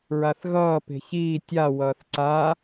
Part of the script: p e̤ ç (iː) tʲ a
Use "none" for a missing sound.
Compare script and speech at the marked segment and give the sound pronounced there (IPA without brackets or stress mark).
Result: iː